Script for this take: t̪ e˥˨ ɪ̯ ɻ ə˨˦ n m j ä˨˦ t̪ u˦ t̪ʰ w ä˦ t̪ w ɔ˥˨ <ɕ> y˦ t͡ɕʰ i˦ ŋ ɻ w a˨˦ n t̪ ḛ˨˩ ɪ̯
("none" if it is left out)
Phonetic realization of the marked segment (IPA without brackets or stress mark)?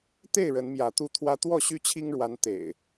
ɕ